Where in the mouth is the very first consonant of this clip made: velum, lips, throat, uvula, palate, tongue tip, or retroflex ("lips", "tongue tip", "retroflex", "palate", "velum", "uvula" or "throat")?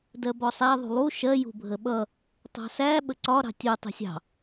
tongue tip